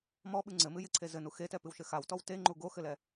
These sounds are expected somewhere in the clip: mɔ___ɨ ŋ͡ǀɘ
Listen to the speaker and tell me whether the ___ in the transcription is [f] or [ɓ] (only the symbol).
ɓ